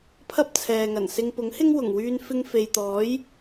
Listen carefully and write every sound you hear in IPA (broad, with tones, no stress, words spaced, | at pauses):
pʰɐ˥p̚t͡sʰɛː˨ŋɐ˨˩nsɪ˧ŋ pʊ˨˥ŋhɪ˥ŋ wʊ˨˩ŋwyː˧n fɪ˧ŋ fe˨jt̪ɔː˨˥j